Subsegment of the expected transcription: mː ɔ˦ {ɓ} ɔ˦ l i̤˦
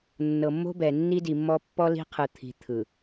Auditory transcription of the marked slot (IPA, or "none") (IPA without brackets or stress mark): pː